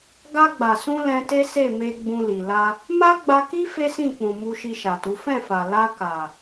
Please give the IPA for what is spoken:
ɡa˧ɡ͡ba˨sũ˧ lɛ̃˧te˦se˦˨ me˧ ɡ͡bũ˧li˨ la˧ | ma˦ ɡ͡ba˧ki˦ fe˦sĩ˦˨k͡pũ˨ mu˧ʃi˧ʃa˨tu˨˦ fɛ̃˦˨fa˨ la˧ ka˨

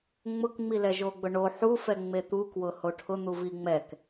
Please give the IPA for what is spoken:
ŋ͡mʊkŋ͡mi lɛʒoɡ͡bʊɳo ħufɛŋ͡me t̪ukwʊ hoʈʰʊ n̪uviŋ͡mɛk

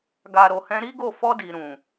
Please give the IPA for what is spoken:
ɡa˨ɾo˨ hɛ̃˧ɾi˦ɡo˦˨ fɔ˧di˨ ɾũ˨

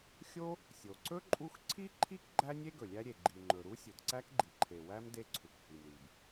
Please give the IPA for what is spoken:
xʲo˥ | sʲo˩ǀɵ˥ ǃʼu˥x ǀʰi˥ ǃʰi˥k ɡ͡ǃæ˥nʲe˥ ɡɵ˩lʲæ˥ɾʲe˩ ɡ͡ǃi˩ŋ͡ǃɵ˩ ɾu˥sʲɵ˩dǀæ˥kɡ͡ǃi˩ ǃʰe˩wæ˥m de˥ǀʰu˩khi˩mɾi˩b

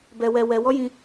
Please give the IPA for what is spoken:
bɛ˧wɛ˧wɛ˧ wɔ˦jĩ˧

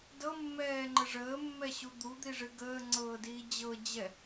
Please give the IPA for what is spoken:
dɤmːɛːŋ͡ǃə ʐəːmːɛɕu d̪ud̪iʐɨ ɡəːŋ͡ǀɤːdiː d͡ʑɤd͡ʑɛ

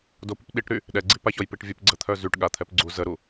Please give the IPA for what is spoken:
dopyp ɗiʈɾy | ɗɛɡ͡ǀi paçɔjpiʈvʲəp ɡ͡ǀət̪ʰœ zyʈɠa t̪ʰɛpɡ͡ǀu zəɾu

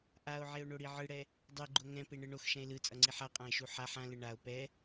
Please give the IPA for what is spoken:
ʔao̯ʕeo̯ɳoɽi ʕɯɽɛ | dˤeɡ͡ǃo ŋɛ̃peɳɯ ɳoxʃɛ̃e̯ lɯt͡sʼʌŋ͡ǀi ħaqʼãe̯ʃu ħaħ ãlɯ ɳao̯ pɛ

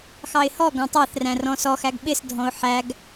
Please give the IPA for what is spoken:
xɑɪ̯hɔɡɔ̃ tˤæθræ̃ rɔ̃sɔxæɡ ɓɪsdʱɔ̃ʊ̯ ħæɡ

